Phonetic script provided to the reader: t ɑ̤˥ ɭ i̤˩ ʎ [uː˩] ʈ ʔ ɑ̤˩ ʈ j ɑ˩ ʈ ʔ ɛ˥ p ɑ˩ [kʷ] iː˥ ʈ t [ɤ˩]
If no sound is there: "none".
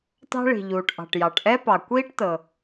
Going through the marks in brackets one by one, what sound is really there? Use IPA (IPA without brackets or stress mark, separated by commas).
uː˩, kʷ, ɤ˩